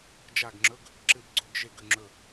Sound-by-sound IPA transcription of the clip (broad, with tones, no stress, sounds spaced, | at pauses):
d͡ʒ a˦˨ ɡ ŋ͡ǁ ɵ˧˥˧ ɡ | ǁ ɨ˦˨ b ɡ͡ǀ o˧˥˧ ɡ ʒ e˦˨ ɡ ʉ˦˨ ŋ͡ǁ ɵ˦˨